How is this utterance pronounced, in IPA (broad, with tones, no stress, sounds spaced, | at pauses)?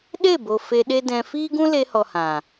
ɗ e˦˨ b o˨ f e˧ ɗ e˦ d ɛ̃˧ f iː˦ ɡ ũ˦ l e˧ h ɔ˨ h ã˨